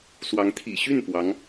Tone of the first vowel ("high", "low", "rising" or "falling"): rising